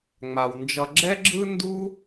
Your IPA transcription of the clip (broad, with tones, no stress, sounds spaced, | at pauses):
ŋ͡m a˩ w n d͡ʒ ʌ˧ ɡ͡ǁ ɛ˥ ɡ͡ǁ ɯ˥ n d u˥